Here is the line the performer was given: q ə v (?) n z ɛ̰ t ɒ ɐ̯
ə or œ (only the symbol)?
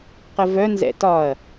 œ